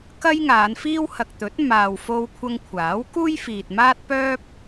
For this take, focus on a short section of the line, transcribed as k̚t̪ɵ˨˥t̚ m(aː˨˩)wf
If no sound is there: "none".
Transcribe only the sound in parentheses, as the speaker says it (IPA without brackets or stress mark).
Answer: aː˨